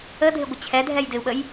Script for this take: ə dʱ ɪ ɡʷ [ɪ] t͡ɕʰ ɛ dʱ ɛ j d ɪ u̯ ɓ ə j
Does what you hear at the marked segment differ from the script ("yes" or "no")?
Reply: no